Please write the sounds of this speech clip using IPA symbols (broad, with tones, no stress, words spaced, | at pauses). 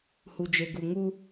hu˨d͡ʒe˨ɡu˨ŋu˦